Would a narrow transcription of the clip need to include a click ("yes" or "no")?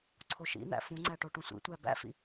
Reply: yes